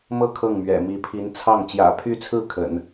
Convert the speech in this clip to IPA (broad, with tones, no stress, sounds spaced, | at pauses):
m ɤ˥˧ kʰ ɤ˥˩ ŋ m ɥ ɛ̰˨˩ m i˧˥ pʰ i˧˥ n t͡sʰ ɑ˥˩ ŋ t͡ɕ j ä̰˨˩ pʰ y˥˧ t͡sʰ ɹ̩˥˩ kʰ ə̰˨˩˦ n